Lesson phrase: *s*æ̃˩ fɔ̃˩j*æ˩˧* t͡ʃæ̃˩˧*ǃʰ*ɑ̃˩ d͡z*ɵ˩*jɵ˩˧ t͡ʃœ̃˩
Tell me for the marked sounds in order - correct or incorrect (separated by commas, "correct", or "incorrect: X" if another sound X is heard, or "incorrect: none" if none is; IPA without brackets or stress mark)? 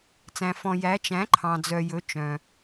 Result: incorrect: t͡s, correct, correct, incorrect: œ˩